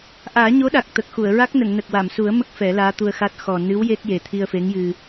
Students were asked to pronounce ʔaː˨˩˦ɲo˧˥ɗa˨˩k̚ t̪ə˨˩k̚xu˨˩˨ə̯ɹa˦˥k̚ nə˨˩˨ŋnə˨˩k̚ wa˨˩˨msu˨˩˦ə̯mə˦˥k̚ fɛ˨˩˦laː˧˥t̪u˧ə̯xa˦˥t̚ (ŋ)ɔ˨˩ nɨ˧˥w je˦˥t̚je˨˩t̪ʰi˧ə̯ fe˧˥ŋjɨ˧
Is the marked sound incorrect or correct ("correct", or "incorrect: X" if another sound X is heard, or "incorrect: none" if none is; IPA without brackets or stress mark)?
incorrect: x